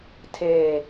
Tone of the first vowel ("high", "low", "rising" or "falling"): low